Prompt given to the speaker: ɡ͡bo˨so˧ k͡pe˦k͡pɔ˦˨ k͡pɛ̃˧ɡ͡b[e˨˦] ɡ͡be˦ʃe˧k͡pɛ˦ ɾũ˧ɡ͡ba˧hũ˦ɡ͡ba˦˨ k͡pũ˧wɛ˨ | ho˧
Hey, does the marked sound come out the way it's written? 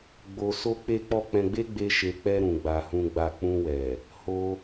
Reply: no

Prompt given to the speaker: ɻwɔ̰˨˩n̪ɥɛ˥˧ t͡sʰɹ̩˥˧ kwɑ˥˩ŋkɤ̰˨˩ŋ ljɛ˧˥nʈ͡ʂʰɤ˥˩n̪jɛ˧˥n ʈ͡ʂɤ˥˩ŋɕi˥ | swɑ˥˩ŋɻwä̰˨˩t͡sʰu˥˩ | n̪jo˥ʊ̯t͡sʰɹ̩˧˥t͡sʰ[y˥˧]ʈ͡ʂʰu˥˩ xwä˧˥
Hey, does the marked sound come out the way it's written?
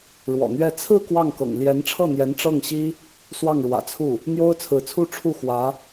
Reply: no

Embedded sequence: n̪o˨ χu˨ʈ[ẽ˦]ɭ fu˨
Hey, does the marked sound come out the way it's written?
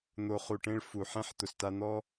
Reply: yes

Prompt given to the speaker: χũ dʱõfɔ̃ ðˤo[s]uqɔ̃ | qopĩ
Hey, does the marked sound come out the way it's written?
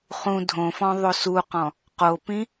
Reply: yes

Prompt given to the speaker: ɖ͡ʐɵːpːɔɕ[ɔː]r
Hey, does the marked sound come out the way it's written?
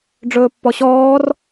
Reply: yes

